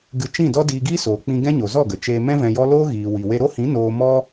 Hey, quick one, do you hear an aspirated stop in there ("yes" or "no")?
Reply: no